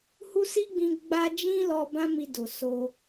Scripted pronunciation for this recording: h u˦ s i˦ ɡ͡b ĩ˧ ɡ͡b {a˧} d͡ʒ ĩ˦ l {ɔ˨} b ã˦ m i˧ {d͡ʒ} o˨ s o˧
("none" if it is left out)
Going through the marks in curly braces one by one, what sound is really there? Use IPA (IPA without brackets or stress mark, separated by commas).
a˧, ɔ˧, d